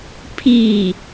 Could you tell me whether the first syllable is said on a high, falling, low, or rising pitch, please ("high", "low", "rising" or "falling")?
falling